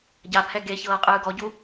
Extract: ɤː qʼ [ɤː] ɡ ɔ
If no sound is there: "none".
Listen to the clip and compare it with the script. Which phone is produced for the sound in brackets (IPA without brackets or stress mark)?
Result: ɯː